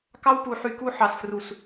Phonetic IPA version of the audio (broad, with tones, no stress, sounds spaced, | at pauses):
k ɑ˦ w p u˨ ħ y˨ k u˦ ħ ɑ˨ s f r u˨ s